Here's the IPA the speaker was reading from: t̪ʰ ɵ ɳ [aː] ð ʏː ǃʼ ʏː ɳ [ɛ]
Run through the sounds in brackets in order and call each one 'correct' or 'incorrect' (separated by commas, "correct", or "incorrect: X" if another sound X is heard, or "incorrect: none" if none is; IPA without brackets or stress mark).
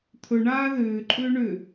correct, incorrect: ʏ